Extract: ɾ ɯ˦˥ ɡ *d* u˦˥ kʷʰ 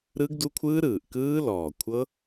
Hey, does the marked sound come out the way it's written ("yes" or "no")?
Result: yes